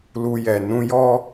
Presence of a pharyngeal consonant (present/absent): absent